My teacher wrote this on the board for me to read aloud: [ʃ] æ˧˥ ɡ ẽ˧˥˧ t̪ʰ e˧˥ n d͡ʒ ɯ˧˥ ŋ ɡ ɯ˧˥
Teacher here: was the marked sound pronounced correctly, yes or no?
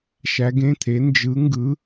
yes